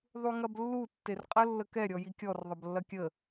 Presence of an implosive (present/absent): absent